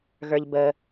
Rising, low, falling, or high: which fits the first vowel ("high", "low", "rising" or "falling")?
low